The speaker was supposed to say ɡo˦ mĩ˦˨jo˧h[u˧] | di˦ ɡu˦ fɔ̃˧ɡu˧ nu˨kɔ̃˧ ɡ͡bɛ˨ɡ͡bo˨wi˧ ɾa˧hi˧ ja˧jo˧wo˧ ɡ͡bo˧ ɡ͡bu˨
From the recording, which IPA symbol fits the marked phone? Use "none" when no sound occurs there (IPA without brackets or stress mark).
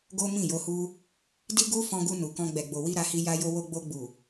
u˦